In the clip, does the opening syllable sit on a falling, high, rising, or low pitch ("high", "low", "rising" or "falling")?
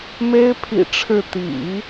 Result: high